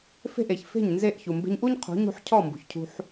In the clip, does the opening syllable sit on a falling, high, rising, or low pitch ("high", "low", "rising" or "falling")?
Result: falling